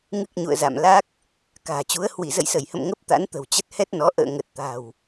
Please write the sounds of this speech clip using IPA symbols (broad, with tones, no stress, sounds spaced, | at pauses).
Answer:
ŋ ɨ˦˥ k̚ ɲ ṵ˧˨ ə̯ z a̰˧˨ m l a˦˥ k̚ | k a̤ː˨˩ t͡ɕ u˨˦ ə̯ h w i˧˩ z ə̰˧˨ j s ə˧˩ j h ə̰˧˨ m ŋ ə˦˥ p̚ t̪ a̰˧˥ n t̪ ə̤˨˩ w t͡ɕ ə˦˥ t̚ h ɛ˦˥ t̚ n ɔ˨˦ ʔ ə̰ː˧˨ ŋ ə˨˩ t̚ t̪ a̤˨˩ w